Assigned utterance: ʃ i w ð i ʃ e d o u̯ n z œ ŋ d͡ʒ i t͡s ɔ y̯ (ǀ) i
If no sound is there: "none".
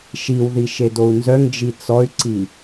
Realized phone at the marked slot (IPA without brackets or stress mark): ǀ